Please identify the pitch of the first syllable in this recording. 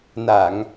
low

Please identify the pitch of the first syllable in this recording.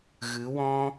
rising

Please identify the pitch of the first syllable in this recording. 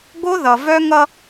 high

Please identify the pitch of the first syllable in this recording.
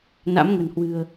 rising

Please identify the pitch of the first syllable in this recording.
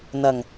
low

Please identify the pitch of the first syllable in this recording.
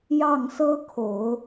falling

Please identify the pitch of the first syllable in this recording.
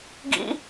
high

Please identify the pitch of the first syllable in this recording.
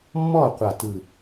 falling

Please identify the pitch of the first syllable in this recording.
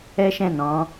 high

